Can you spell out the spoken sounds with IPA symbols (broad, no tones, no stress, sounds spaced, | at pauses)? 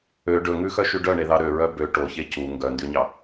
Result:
ø ɖ ɵ ŋ ʉ x œ ʃ y ɖ œ ɳ e ð ɑ ɾ ø ɹ œ b ø ʈ o ç e c u ŋ ɡ œ n d y ɲ ɑ